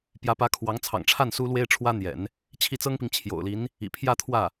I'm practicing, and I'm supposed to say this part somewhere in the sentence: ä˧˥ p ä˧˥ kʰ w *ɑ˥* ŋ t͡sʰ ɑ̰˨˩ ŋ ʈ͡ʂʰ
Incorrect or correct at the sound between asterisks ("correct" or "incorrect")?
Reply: incorrect